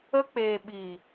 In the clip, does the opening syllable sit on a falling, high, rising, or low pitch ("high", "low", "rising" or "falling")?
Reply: high